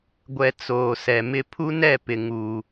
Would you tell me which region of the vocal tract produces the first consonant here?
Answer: velum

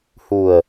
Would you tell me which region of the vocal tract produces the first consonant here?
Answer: throat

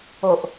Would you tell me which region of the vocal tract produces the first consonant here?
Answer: throat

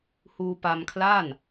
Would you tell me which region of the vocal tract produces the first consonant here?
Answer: throat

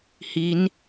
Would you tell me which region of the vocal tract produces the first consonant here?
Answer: throat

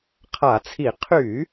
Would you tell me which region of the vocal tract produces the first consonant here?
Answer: uvula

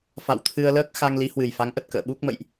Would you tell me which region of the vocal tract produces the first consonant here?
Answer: lips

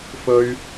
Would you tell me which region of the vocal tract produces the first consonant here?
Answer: lips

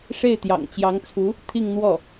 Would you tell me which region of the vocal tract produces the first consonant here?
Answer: retroflex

